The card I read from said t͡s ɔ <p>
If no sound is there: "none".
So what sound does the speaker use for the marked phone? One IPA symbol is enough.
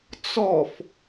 f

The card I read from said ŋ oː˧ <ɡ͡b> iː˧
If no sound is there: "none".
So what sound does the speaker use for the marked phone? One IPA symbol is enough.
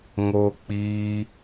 k͡p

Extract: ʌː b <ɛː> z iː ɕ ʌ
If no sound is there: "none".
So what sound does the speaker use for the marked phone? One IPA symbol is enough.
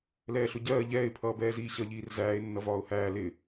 ɛː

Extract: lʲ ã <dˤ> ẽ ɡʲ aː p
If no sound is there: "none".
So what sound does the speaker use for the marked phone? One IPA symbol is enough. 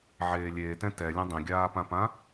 dˤ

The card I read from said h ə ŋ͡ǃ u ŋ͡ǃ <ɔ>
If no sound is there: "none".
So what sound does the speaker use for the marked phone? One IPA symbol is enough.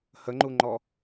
ɔ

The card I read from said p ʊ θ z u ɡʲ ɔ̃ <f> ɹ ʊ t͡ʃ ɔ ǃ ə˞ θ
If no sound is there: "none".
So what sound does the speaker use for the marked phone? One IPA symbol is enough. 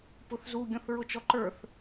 θ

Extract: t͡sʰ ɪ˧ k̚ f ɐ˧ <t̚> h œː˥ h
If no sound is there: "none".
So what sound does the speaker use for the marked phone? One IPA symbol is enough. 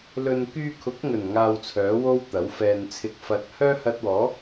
t̚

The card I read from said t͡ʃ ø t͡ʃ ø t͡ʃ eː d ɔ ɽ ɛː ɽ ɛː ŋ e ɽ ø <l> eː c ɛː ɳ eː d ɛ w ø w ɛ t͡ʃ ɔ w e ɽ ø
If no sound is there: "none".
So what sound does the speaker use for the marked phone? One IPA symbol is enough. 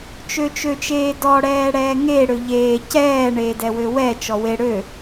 ʎ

